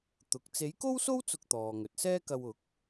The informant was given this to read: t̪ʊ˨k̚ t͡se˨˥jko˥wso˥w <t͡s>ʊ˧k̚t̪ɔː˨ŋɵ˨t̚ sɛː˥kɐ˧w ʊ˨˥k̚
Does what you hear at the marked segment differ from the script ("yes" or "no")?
no